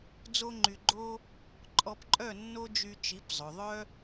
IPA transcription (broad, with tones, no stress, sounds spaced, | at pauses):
d͡z o˦ ŋ͡ǃ y˧ ɡ͡ǃ o˦ | ǃʼ ɔ˧ p ǃʼ œ˦˨ nː o˦ d͡ʒ y˧ t͡ʃ i˨˦ p zˤ ɵ˨ ðˤ œ˦